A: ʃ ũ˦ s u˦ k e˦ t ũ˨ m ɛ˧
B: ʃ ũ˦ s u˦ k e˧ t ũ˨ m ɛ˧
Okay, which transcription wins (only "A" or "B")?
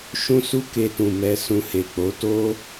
B